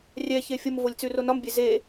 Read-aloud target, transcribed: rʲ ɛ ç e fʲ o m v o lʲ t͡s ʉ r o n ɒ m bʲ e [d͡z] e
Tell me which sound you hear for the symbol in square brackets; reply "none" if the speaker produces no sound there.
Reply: z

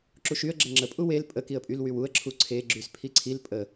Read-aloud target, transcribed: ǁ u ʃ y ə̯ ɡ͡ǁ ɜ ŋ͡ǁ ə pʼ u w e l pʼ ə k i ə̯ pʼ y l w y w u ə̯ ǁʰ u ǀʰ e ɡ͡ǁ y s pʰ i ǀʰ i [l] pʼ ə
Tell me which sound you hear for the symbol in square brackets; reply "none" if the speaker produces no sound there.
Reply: l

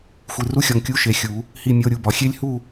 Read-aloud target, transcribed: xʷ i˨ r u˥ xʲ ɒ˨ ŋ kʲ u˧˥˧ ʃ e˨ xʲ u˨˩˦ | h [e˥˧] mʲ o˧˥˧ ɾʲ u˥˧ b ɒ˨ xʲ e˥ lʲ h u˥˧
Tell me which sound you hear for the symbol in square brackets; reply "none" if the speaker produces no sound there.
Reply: i˥˧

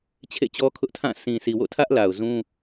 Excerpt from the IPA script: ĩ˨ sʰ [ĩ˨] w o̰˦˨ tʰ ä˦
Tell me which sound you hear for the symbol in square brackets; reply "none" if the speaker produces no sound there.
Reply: i˨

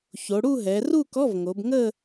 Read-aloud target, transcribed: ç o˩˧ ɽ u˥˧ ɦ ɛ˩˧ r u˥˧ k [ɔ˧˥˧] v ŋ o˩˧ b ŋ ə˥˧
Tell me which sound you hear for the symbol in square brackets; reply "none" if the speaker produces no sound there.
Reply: ɔ˧˥˧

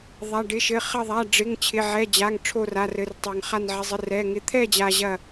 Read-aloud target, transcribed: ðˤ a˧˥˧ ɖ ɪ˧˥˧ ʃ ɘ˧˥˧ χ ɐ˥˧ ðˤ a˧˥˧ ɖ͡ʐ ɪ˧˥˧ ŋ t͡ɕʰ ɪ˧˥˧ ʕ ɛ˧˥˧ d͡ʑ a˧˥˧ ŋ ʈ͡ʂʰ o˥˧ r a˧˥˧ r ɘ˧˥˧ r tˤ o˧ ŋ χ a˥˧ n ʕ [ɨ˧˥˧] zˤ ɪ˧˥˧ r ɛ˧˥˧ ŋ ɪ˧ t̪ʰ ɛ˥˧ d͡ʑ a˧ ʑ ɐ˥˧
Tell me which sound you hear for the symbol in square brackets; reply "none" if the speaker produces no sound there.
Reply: ɪ˧˥˧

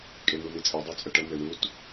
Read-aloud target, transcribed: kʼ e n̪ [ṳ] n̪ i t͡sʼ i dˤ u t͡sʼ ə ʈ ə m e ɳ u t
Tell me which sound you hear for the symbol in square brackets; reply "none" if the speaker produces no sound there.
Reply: u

